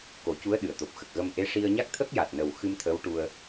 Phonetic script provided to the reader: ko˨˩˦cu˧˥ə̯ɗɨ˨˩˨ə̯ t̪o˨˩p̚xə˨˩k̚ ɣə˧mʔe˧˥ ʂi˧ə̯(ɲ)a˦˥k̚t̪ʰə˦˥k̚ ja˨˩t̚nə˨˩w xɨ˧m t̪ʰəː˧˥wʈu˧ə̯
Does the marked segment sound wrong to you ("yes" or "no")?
no